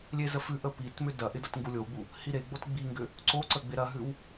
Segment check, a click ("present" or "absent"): present